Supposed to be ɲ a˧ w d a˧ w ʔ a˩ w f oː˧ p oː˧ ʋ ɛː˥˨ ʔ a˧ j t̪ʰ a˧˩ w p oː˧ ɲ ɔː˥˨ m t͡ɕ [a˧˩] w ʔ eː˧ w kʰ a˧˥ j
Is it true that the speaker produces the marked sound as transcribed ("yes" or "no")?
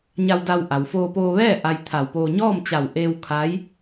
yes